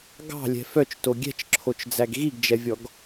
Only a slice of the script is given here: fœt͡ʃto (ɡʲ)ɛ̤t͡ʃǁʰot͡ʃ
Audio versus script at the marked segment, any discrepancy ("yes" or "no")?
no